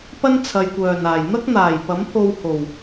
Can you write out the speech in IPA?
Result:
pɐ˥nt͡sʰɐ˨jkʷœː˨˩naː˨˩j n̪ɐ˥k̚n̪aː˨˩jpɐ˨˥m pʰo˧w ho˨˩w

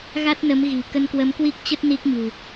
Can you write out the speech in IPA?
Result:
ɣa˦˥t̚nə˨˦mɣi̤˨˩ kə˧nkwə˨˦mkwi˦˥k̚t͡ɕə˦˥t̚ ni˦˥k̚ɲṳ˨˩

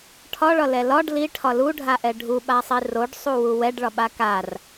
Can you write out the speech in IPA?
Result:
ʈʰɒɭɒlɛ lɒɖ liʈʰɒ luɖʱaʔɛ ɖʱuɓasˤi roɖsˤuwu wɛɖɭɒɓa kar

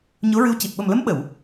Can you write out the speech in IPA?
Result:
ɲo˧˥ɹɨ˧˥wci˨˩t̚ ɓə˨˩mlə˧˥m ɓə˨˩˨w

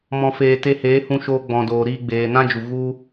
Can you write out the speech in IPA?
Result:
mɔ̃˨feː˨ te˧heː˨˦hũ˧ ʃoː˧ɡ͡bɔ̃˨ doː˨ɾiː˧ ɡ͡beː˨nã˦d͡ʒu˨ ɣu˦

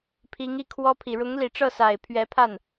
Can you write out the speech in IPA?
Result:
pʰi˧˥ŋi˥˩kʰwɔ˥pʰi˨˩ ɻʊ˧˥ŋli˨˩ʈ͡ʂɤ˥˩sa˨˩ɪ̯ pʰɥɛ˧˥pʰa˥˩n

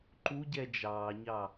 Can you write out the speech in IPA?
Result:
ǃuɟɛ d͡ʒɑːɲɑ

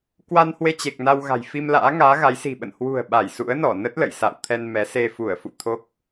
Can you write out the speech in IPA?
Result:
kwa˧nhwe˧t͡ɕe˨˩k̚ na˧w ɣa̤˨˩jfi˧m la̰ː˧˥ŋaː˨˦ɣa˨˦jsi̤˨˩ ɓə̰˧˨n hwṳ˨˩ə̯ ɓa˧˩jsṵ˧˥ə̯nɔ˧˩ nə˦˥t̚lə̰˧˨j sa̰˧˨wt̪ʰɛ˧nmɛ˨˦ se˧ fu˧˩ə̯fṵ˧˨ t̪ʰo˦˥k̚

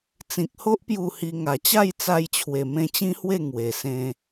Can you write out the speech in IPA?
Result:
t͡sĩ˨k̚ho˦ʔ pju˥˧hi˧ ŋa˨˩t͡ɕa˥˧jt͡sa˧jt͡ɕʰwe˨˩ mẽ˧t͡ɕĩ˦hwe˥˧ ŋwe˨˩ sẽ˧

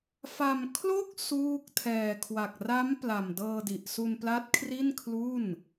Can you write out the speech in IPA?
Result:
fa˧m kʰlo˥˩k̚ suː˥˩k̚ tʰɛː˨˩kʰwa˨˩k̚ ra˦˥m pla˨˩mdɤː˧di˨˩ʔ su˧npla˦˥t̚kʰri˥˩n kʰlu˥˩n

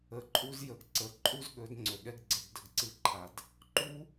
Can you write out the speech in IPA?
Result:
ə˨ǃʼu˧z jə˨ɡ ǀə˨ ǃʼu˦zɠɵ˨˦d ŋ͡ǀɵ˨ɠɛ˦ɡɡ͡ǀə˧ɡ də˨ɡǀɨ˦˨ǃʰa˨d | ǃu˦

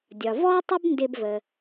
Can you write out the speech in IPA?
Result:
dʲɒ˩ vɔ˥ tˤə˥bndɪ˧bvə˩

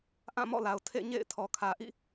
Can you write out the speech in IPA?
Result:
ʔã˦˨ mɔ̰˦˨la˨ʊ̯ tʰḛ˦˨ɲḛ˦˨ɪ̯ tʰɔ˨kʰä˨ʔḭ˦˨

